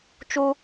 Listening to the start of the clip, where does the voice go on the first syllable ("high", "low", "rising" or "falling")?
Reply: high